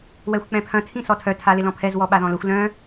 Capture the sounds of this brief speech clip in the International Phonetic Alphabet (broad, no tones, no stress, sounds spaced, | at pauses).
w ɛ xʷ k͡p ɛ̃ pʰ ɐ̃ tʰ ĩ s ɔ tʰ œ tʰ a l ɪ l ɔ̃ pʰ ɛ z w ɔ ɓ a ð ɔ̃ l ʊ xʷ l œ̃